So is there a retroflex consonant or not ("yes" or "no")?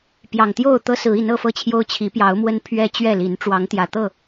yes